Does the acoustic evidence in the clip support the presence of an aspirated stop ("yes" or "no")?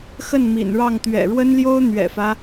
no